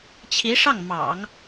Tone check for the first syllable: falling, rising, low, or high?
rising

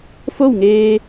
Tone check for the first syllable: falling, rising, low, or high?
falling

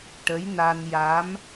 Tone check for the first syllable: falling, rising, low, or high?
rising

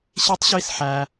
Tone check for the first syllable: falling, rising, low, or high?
high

